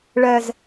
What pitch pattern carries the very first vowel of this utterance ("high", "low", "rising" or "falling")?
low